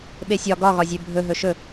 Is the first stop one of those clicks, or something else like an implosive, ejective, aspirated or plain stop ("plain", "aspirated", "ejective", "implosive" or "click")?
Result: implosive